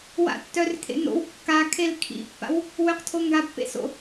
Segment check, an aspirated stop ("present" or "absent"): present